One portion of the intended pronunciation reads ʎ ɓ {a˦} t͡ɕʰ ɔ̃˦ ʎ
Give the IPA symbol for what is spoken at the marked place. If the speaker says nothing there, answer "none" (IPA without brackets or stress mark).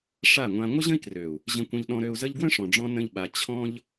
a˧